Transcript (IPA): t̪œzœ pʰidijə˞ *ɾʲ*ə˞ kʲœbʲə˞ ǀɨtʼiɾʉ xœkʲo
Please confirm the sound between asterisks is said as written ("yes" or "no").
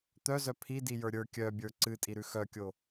yes